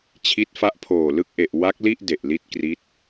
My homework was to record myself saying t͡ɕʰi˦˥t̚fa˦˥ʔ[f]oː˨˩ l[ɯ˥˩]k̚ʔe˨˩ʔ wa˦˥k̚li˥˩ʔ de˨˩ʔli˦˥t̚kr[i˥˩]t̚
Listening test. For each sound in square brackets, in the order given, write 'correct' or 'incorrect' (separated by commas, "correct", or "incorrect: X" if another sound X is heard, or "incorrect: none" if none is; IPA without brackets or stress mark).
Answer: incorrect: pʰ, correct, incorrect: i˦˥